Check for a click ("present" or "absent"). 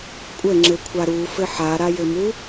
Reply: present